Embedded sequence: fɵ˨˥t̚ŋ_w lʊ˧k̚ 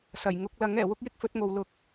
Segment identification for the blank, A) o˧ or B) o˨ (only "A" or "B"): B